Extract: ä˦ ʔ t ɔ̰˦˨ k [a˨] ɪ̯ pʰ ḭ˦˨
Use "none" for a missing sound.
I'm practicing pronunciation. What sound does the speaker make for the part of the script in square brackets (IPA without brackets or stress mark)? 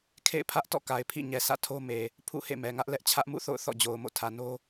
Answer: a˨